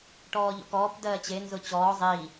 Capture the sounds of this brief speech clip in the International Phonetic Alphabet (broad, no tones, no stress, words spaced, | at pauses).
ʈɔːʎɔ̰kɔːp dɜːt͡ɕe nzʊt͡ɕɔː zˤiː